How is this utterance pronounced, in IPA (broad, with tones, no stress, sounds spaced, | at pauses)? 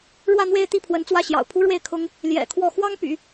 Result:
ɻ w ä˥˧ n̪ w e˥˧ ɪ̯ t̪ i˥˩ pʰ w ə˧˥ n t͡s w ä˥˩ ɕ j ɑ̰˨˩ ʊ̯ pʰ u˥ ɻ w e˥˩ ɪ̯ kʰ ʊ˥ ŋ | l j ɛ̰˨˩ kʰ w ɔ˥˩ x w ɑ˥ ŋ p y̰˨˩˦